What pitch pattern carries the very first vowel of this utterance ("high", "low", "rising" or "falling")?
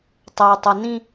low